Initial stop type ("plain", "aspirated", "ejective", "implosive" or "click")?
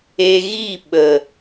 implosive